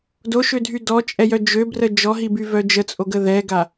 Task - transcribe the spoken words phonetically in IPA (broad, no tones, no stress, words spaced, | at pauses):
doʃødʱy dɔt͡ʃʼɛjœ d͡ʒøbrə d͡ʒɔɦibyvœ d͡ʒət͡sʼoɡə ðɛɡa